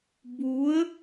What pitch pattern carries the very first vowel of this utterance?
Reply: rising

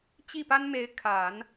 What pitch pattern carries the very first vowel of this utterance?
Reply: falling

